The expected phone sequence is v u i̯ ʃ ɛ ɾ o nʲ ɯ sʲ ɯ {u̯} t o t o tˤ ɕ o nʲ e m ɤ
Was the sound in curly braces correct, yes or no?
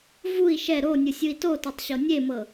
no